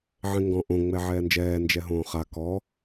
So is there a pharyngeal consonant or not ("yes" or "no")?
yes